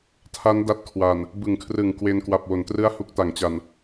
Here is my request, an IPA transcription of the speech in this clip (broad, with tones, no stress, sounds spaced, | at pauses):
tʰ a˦˥ n d a˦˥ t̚ kʰ w a˨˩ n | b ɯ˩˦ ŋ kʰ r ɯ˨˩ ŋ k w e˧ n k w a˨˩ p̚ w o˩˦ n t r ɯ˥˩ a̯ h u˦˥ k̚ t a˩˦ ŋ t͡ɕ a˨˩ n